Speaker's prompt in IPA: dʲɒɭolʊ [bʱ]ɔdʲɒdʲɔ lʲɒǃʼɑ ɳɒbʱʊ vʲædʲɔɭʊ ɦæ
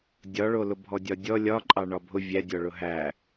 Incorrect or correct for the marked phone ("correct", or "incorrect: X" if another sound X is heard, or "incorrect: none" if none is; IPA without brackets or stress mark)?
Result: correct